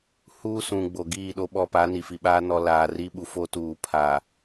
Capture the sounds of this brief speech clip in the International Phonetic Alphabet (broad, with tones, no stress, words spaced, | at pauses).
huː˦sũ˨ ɡ͡bo˨ ɡiː˦˨ ɗo˦ɓɔ˦pa˨˦ ni˨fi˨ɓaː˦ nɔ˦ laː˨ri˦ ɓu˨fo˦tuː˨ pʰa˨